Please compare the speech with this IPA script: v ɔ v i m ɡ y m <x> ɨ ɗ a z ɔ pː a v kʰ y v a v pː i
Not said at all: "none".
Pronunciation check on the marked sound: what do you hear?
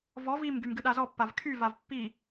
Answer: ɡ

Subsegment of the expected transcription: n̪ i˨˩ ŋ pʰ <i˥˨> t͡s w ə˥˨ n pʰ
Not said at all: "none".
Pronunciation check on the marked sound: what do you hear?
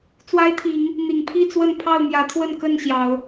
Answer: i˥˨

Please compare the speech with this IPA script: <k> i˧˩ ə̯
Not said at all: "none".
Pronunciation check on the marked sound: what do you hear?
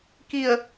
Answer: k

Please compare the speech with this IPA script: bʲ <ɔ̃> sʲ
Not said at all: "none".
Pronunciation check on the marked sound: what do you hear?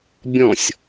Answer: ɔ̃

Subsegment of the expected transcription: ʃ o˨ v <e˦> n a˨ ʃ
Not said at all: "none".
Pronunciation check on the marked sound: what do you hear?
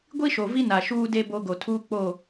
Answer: i˦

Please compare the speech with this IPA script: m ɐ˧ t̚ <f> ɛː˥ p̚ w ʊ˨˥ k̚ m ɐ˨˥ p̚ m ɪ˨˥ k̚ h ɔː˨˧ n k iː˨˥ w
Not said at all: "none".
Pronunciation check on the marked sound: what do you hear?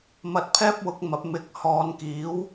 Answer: pʰ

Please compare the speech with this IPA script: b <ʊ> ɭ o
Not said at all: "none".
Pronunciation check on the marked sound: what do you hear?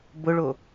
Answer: ʊ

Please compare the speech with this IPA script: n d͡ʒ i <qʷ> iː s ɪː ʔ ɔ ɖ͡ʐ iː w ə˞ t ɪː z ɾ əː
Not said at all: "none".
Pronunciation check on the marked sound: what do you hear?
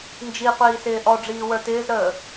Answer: qʷ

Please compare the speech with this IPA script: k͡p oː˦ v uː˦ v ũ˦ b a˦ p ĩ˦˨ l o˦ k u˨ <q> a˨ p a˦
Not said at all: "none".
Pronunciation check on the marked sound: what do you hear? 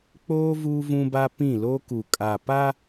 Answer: kʼ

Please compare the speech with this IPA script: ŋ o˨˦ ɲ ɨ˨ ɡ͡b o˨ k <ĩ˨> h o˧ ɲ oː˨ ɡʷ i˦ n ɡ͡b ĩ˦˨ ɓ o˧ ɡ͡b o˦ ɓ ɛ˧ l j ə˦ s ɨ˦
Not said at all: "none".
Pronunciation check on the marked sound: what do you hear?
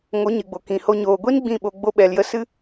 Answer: ĩ˨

